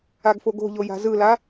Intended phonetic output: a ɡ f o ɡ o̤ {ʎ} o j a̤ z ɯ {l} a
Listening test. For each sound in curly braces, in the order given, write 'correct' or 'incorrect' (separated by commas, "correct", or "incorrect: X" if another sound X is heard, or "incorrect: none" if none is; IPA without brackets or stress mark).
correct, correct